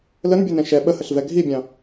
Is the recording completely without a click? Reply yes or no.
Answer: yes